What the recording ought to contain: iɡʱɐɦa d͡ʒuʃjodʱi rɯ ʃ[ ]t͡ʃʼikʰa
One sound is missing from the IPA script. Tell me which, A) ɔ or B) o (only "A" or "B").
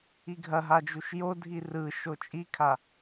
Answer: B